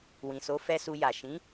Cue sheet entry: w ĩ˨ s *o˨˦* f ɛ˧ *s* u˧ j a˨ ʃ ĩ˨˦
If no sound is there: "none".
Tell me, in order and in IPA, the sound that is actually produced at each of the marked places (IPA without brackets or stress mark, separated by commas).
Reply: o˨˦, s